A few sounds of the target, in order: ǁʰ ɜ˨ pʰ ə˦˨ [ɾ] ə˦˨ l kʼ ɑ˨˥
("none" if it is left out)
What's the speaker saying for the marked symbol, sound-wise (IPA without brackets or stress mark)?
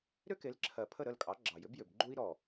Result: ɾ